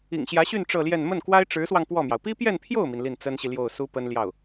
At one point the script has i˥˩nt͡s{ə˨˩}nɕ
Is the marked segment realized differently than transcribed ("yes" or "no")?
yes